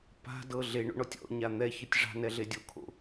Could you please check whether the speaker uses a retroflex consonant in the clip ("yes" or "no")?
yes